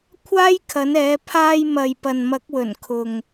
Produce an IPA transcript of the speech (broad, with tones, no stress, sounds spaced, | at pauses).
kʷʰ aː˥ j kʰ ɐ˨˥ n ɛː˨˥ pʰ aː˧ j m ɐ˨ j p ɐ˨ n m ɐ˨˥ k̚ w ɵ˨˩ n kʰ ʊ˨ ŋ